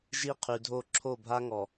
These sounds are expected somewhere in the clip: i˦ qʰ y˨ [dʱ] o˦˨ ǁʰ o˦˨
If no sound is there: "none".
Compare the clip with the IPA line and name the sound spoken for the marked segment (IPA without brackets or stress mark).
dʱ